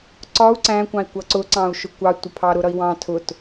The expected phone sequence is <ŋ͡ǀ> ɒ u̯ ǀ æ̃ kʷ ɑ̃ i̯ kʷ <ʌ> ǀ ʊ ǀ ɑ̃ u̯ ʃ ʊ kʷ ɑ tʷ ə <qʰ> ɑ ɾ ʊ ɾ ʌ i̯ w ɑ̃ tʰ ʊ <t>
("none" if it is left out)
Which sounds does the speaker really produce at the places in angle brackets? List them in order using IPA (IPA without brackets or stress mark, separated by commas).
ǀ, ʌ, pʰ, t